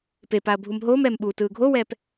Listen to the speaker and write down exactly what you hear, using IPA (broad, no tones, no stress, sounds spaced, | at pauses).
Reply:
p e p a ɐ̯ bʱ u m ɦ oː m ɛː m ɓ uː t ɯː ɡʱ o w ɛː p